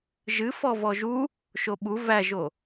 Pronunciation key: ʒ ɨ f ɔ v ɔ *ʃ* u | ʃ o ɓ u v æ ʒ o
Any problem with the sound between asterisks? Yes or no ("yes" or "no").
yes